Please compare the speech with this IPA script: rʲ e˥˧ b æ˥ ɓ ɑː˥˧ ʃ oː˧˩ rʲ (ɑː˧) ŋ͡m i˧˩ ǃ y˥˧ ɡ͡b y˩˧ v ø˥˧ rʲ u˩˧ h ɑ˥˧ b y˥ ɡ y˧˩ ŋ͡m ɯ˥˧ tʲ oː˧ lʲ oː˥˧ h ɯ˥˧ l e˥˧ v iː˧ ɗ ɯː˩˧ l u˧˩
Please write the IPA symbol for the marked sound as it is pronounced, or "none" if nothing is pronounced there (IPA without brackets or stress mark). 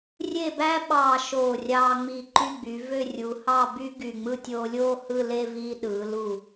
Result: ɑː˧